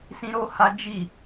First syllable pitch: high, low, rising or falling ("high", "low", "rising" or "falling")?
high